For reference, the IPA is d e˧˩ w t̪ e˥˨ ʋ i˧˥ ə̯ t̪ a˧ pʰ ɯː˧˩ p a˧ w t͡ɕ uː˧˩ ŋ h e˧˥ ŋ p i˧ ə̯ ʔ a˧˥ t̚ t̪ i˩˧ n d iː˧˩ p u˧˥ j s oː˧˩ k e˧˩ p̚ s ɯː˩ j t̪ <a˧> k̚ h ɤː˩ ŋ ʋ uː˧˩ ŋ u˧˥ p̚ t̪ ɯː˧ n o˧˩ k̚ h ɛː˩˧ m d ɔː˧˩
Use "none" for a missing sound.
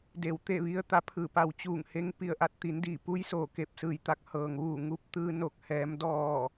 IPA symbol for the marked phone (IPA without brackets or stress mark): a˧